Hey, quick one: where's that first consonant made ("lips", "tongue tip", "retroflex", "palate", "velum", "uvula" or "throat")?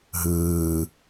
throat